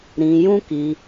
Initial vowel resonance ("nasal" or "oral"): nasal